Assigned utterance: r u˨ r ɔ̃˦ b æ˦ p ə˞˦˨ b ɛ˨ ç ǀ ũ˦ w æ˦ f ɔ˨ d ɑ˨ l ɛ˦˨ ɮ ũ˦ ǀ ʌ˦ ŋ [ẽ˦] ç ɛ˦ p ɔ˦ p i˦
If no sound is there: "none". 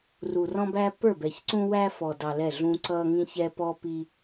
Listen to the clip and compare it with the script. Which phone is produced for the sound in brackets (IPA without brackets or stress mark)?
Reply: ĩ˦